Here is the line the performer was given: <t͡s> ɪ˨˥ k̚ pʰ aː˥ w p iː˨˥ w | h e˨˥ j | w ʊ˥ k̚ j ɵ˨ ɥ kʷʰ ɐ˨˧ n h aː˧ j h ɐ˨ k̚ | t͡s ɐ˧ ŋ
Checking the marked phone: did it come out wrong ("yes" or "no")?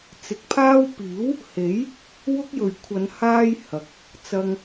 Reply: no